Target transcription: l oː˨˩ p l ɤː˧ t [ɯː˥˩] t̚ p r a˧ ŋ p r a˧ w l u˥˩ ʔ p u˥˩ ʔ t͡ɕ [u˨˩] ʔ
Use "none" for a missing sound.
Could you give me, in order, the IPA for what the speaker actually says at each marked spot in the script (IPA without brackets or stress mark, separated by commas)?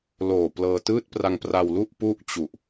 ɯː˥˩, u˨˩